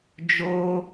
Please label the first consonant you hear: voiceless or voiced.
voiced